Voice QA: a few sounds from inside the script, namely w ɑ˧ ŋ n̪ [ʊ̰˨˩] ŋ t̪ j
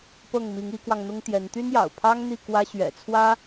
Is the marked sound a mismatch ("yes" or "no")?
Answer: yes